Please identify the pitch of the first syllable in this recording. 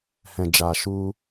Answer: low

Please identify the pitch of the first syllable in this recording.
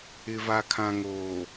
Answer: low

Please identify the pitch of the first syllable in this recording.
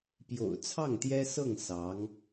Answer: low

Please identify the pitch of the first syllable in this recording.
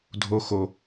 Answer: low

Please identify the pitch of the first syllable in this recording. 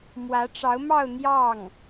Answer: rising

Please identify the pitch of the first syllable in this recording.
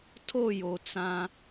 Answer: falling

